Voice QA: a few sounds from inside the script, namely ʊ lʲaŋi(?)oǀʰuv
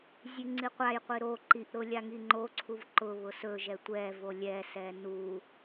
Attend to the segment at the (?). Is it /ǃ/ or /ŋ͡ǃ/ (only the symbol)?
ŋ͡ǃ